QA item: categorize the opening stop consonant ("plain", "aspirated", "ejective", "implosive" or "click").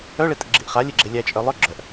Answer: ejective